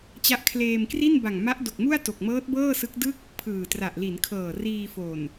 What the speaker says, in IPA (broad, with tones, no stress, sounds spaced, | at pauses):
t͡ɕ a˦˥ ʔ kʰ l eː˧ m k r i˥˩ n b a˨˩ ŋ m a˦˥ ʔ d o˨˩ k̚ m u˥˩ a̯ t o˨˩ k̚ m ɤː˦˥ t̚ b ɤː˥˩ s ɯ˦˥ k̚ d ɯ˥˩ k̚ | pʰ ɯː˨˩ t r a˨˩ ʔ l i˩˦ n kʰ ɤː˨˩ r iː˧ f o˨˩ n